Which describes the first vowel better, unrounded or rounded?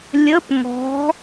unrounded